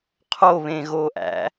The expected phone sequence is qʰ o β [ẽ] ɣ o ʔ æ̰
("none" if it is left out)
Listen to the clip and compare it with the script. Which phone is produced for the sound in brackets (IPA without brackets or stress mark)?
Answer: ẽ